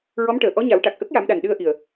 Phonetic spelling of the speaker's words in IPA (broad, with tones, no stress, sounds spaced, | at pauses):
ɹ ɔ˧˥ m ʈ əː˨˩˨ ʔ ɔ˧˥ ɲ a˨˩˦ w ʈ a˨˩ k̚ ʔ ə˦˥ k̚ j a˨˩˦ m ɗ a˨˩ n ɗ ɨ˧ ə̯ ʔ i˨˩ ə̯